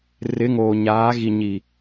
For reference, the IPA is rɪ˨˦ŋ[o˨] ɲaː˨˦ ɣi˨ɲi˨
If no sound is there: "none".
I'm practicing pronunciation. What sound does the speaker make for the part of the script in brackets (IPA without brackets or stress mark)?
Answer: oː˨